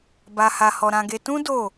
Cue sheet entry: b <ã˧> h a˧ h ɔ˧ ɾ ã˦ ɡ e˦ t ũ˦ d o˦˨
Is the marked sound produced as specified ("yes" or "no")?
no